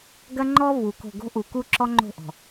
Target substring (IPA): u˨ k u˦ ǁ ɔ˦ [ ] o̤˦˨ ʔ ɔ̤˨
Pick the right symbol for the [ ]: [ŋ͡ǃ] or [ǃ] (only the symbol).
ŋ͡ǃ